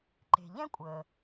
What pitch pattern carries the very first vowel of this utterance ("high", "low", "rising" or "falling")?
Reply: low